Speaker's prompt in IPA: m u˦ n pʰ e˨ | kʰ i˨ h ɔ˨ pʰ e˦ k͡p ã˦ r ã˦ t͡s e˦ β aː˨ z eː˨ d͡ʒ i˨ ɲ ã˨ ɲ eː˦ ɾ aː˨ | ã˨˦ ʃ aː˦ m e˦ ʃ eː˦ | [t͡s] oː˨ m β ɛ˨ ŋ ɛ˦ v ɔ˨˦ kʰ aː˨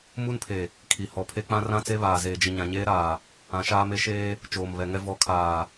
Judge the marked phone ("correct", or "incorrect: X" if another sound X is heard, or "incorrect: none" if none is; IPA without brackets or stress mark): incorrect: t͡ʃ